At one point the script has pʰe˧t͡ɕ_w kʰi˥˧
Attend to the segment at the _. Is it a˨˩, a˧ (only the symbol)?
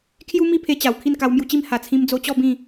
a˨˩